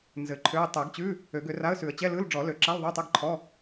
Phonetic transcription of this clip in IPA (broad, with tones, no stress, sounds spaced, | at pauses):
n z ɘ˨˩˦ ǃʰ ø˧˥˧ ə̯ tˤ ɛ˨˩˦ ɡ t͡ɕ ʉ˧˥˧ | ø˨˩˦ ɡ ø˨˩˦ r a˧˥˧ ə̯ s ʉ˨˩˦ ə̯ t͡ɕ ɛ˧˥˧ l ɯ˧˥˧ l ɖ͡ʐ ɔ˨˩˦ l ø˨˩˦ ǁ a˧˥˧ l ðˤ ø˧˥˧ tˤ ə˧˥˧ ɡ ǃʰ ɔ˧˥˧